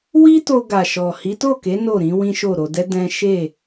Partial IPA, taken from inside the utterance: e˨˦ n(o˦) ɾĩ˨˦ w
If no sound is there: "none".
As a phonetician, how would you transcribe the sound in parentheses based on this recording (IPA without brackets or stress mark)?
o˦˨